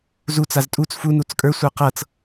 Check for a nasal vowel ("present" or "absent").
absent